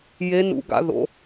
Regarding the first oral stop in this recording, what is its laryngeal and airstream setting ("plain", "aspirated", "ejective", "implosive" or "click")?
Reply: plain